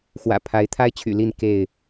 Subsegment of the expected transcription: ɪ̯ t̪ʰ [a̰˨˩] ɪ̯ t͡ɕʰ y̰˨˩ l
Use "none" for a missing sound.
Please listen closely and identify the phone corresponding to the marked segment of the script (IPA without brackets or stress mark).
a˦